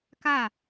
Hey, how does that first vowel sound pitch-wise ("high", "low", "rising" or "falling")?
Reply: falling